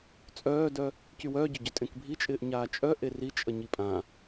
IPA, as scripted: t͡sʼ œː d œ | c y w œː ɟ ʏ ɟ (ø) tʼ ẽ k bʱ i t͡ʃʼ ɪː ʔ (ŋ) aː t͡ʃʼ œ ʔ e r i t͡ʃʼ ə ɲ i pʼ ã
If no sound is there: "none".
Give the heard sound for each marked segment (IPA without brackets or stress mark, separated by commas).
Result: œ, ɲ